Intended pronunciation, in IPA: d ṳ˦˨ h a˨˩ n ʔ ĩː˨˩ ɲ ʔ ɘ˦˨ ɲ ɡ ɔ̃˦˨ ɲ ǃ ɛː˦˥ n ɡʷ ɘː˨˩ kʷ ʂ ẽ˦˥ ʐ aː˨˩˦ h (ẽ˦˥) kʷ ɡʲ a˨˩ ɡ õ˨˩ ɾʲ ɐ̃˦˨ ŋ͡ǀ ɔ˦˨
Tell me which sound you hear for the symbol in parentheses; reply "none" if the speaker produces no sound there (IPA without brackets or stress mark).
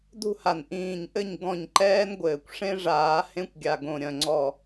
ẽ˦˥